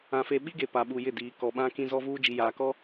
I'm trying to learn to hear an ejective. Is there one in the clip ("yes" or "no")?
no